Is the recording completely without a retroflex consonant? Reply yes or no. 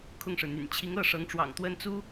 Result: no